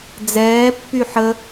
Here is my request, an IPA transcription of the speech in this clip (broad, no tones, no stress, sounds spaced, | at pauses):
d͡z ɛː pː y ħ ə